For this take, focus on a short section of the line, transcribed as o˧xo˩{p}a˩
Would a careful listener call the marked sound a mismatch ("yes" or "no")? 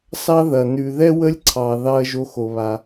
yes